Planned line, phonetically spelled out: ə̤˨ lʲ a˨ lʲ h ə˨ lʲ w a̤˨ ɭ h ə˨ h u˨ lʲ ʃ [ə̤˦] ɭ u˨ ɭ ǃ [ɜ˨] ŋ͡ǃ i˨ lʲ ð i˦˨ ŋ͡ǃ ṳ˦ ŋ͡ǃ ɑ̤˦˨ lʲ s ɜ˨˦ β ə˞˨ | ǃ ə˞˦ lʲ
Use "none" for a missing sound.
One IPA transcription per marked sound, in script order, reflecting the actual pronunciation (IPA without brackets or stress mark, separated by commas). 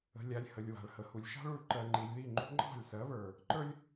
ɑ̤˦, ɜ˨